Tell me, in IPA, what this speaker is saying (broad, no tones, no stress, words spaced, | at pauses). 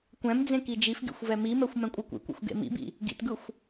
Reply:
kʷɛ̃md͡zẽ kid͡ʒifɡḭxʷ vɛmimɛxʷ mɛ̃kʷʼɯkʷḭkʷḛxʷ ɡḛmḭbḭ | ɡḭtɡɯxʷ